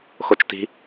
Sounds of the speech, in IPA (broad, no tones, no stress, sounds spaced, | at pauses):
x o t͡ʃ t i̤